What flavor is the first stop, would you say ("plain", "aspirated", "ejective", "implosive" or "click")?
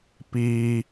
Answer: plain